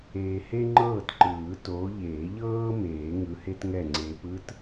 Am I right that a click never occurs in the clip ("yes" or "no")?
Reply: no